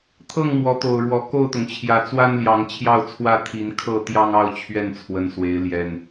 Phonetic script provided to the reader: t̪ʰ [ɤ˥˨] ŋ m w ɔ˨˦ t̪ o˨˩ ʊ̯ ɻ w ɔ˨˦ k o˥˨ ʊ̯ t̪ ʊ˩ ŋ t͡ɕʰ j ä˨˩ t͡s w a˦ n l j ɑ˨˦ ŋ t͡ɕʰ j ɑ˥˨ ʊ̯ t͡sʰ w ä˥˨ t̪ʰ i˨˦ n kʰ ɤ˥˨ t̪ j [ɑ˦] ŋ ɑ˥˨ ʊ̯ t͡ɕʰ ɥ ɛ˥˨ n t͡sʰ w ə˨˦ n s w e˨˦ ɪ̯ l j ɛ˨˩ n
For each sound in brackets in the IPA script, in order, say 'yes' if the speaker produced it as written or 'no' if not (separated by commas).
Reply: yes, yes